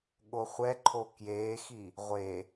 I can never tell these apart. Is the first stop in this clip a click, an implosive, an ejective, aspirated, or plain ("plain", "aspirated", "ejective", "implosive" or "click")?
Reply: implosive